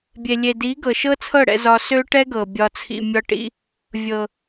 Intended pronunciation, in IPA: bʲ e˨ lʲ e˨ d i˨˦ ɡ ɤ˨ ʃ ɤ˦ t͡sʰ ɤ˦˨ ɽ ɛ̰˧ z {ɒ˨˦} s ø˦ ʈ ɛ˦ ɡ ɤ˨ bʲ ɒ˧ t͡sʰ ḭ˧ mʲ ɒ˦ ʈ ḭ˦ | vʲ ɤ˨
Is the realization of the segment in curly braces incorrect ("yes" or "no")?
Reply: yes